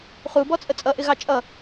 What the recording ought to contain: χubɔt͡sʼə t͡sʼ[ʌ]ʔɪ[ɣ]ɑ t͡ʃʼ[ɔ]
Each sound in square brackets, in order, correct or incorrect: correct, correct, incorrect: ʌ

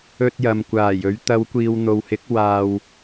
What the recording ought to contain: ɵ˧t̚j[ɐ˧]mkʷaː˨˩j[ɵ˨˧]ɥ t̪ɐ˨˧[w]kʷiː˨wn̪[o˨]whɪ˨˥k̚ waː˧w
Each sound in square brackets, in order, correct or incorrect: incorrect: ɐ˨, correct, correct, correct

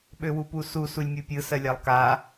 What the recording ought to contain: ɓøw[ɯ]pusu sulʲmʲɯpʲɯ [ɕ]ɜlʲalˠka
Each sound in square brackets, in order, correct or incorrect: incorrect: u, incorrect: s

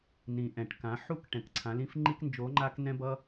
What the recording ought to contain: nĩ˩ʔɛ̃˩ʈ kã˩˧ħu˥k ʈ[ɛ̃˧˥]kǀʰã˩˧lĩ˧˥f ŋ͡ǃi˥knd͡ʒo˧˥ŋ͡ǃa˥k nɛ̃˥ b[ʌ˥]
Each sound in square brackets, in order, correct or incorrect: incorrect: ɛ̃˩, correct

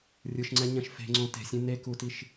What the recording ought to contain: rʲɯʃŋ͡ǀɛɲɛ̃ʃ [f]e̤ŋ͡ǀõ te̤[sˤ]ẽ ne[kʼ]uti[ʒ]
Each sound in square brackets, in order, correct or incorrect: correct, incorrect: sʲ, incorrect: k, incorrect: ʃ

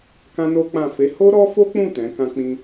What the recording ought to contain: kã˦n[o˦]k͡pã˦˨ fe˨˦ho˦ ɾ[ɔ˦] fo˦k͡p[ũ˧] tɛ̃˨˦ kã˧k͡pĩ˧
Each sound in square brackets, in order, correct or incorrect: correct, correct, incorrect: ũ˦˨

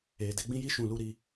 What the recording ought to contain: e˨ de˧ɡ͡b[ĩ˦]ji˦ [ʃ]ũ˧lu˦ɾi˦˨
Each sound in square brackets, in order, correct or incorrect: correct, correct

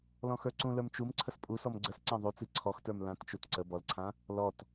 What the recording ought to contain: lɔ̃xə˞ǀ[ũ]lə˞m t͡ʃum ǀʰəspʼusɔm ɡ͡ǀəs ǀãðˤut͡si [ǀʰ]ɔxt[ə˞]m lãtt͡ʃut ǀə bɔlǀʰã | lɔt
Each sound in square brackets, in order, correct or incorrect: correct, correct, correct

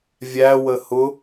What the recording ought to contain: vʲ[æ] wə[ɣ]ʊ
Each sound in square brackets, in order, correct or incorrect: correct, incorrect: h

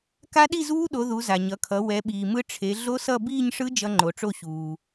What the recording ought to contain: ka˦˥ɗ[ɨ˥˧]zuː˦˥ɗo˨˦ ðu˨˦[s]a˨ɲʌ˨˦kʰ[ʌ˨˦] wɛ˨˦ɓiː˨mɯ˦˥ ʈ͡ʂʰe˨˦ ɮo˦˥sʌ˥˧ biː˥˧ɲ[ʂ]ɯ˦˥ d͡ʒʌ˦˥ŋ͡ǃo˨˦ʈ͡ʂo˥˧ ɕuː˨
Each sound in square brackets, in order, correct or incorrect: incorrect: i˥˧, incorrect: z, correct, correct

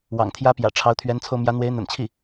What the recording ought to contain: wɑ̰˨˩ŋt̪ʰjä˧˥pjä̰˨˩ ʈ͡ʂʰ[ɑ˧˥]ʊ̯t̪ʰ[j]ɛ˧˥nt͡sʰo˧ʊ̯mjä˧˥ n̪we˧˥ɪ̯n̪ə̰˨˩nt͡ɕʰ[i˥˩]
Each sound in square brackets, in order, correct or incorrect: correct, incorrect: ɥ, correct

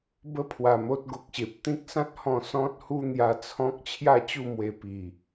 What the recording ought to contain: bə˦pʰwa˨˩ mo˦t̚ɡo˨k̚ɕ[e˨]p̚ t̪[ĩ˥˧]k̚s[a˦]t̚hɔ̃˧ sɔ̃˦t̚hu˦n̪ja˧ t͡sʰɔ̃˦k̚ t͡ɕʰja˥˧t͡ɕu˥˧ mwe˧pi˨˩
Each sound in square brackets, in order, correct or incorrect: correct, incorrect: ĩ˦, incorrect: ã˦

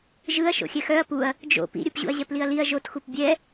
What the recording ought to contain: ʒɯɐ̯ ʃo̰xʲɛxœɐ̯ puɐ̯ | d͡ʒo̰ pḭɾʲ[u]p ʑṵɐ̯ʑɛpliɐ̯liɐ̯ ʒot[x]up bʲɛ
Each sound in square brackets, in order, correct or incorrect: incorrect: ɯ, correct

